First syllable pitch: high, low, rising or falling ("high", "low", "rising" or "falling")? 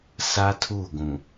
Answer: high